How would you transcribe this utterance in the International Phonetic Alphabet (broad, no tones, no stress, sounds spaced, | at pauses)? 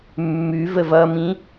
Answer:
mː ʉ v ə v ʌ m ĩ